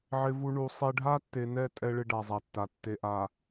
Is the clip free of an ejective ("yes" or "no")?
no